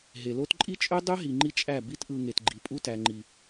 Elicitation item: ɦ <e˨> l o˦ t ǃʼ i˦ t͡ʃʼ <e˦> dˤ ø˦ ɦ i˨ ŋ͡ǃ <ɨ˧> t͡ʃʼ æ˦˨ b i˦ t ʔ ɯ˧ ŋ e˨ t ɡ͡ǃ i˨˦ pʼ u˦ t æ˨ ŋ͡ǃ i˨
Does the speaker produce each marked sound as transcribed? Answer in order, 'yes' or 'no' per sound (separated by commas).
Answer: yes, no, no